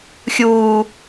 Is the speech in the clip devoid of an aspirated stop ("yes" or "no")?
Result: yes